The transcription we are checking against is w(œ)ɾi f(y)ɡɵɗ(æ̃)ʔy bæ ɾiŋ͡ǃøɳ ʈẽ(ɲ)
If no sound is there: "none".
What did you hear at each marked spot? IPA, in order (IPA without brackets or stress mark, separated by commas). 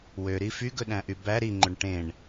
ø, y, æ̃, ɳ